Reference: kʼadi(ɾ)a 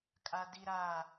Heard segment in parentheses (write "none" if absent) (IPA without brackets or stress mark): ɾ